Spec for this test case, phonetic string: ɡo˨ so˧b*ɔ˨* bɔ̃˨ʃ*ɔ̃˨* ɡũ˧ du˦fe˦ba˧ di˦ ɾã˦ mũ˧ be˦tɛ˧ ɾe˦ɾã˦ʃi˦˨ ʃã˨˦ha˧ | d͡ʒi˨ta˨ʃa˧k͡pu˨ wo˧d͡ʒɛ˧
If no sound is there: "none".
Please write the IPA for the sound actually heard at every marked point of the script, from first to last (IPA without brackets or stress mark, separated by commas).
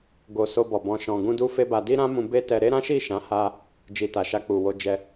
ɔ˨, ɔ̃˨